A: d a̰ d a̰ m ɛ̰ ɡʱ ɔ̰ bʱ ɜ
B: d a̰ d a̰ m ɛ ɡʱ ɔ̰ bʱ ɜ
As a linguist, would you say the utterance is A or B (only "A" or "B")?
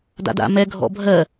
B